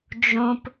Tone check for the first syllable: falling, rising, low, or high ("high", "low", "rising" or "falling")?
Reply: low